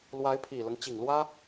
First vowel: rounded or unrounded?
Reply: unrounded